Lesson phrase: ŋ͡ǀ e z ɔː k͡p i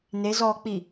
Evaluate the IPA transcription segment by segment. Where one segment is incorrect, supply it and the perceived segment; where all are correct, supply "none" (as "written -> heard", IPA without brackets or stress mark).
ŋ͡ǀ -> n